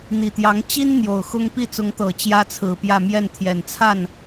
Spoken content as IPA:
n̪ i˨˩ t̪ j ɑ˧˥ ŋ t͡ɕ i˥ n n̪ j o˨˩ ʊ̯ x ʊ˥ ŋ p i˥˩ t͡s ʊ˧˥ ŋ t̪ ɤ˨˩ t͡ɕ j ä˥ t͡sʰ ɹ̩˨˩ p j ä˥˧ m j ɛ˥˩ n t̪ʰ j ɛ˨˩ n t͡sʰ a˥˩ n

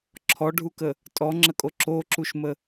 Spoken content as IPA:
ǁʰ ɔ ɖʱ u k ə | tʼ ɔ ŋ͡ǁ ə kʼ o ǁ o ǁ u ʃ m ə

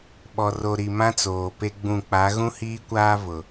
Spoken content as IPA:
ɓ ɔ˨ r o˨ ɾ i˨ m ã˦ t͡s oː˨ p e˦ ɡ͡b ũ˦˨ k͡p a˨˦ ɣ ũ˦ h iː˦ kʷ aː˦ v ʊ˨

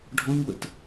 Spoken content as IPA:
ɖʱ ɔ̃ ɲ w ə̰ t

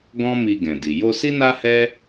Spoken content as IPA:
ɡ ɔ̃˦ m i˧ ɡ ɛ̃˨ d i˨ j o˧ s i˦ n a˦ h ɛ˦

